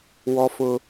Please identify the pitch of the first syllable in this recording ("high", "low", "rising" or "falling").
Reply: high